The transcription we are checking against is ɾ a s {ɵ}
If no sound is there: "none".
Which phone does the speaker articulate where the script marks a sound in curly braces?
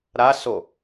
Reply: o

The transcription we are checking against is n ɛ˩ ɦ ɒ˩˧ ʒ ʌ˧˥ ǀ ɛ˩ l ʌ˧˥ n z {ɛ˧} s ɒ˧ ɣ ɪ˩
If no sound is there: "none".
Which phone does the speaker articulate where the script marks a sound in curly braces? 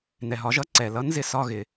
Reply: ɪ˧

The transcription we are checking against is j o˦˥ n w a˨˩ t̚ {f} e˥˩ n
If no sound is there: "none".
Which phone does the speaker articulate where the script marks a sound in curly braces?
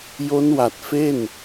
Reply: f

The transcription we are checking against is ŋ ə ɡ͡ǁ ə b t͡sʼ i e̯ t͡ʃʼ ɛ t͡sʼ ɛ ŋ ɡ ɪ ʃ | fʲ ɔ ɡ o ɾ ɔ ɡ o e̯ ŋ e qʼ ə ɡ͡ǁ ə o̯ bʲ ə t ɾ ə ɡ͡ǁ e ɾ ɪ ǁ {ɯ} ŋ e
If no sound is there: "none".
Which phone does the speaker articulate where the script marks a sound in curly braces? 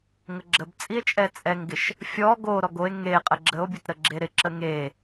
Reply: ə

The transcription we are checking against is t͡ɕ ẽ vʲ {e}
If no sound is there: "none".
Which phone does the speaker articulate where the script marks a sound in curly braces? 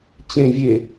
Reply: e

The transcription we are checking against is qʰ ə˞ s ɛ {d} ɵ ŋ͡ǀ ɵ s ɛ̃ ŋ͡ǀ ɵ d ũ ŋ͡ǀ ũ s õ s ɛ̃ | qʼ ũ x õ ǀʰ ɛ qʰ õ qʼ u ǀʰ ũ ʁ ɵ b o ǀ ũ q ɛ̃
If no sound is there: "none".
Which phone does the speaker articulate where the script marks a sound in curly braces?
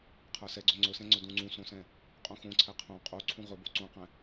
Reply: ɡ͡ǀ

